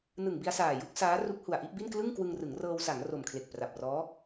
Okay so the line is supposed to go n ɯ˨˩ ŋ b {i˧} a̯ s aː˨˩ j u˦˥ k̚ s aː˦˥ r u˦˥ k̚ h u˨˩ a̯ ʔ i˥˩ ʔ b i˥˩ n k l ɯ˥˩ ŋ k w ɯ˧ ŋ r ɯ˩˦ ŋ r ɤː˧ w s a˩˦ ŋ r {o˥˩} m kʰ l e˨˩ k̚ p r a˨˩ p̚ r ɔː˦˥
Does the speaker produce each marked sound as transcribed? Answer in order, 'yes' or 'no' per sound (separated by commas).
yes, no